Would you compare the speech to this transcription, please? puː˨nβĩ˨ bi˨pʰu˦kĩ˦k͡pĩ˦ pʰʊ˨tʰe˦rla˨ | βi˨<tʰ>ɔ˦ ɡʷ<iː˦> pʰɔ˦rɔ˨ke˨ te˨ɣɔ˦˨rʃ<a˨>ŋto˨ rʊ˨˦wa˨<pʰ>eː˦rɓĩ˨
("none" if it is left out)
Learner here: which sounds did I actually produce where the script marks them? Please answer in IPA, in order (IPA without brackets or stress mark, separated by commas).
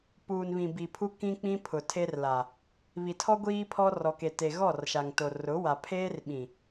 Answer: tʰ, iː˦, a˨, pʰ